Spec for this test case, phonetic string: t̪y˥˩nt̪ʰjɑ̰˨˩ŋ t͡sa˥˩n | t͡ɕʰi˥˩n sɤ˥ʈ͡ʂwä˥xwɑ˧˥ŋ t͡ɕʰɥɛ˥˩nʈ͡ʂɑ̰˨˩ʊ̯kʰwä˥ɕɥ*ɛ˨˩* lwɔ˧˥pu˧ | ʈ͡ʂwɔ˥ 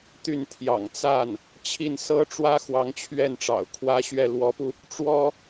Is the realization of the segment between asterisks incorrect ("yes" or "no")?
yes